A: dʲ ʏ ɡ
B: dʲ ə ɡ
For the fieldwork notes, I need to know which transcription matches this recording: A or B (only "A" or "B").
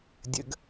B